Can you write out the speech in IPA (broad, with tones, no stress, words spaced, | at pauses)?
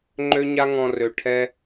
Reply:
ŋ͡ǃø˦ɲa˦ŋɔ̃˧ rø˨ ʈʰɛ˦